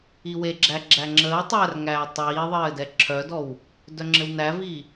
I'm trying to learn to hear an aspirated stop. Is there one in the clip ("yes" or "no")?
yes